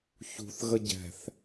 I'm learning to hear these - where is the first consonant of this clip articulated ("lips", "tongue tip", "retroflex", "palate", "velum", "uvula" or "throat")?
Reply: palate